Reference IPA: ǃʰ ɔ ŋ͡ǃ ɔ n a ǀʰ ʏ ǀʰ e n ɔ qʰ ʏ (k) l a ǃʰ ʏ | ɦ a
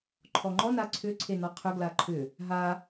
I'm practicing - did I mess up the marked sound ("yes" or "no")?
yes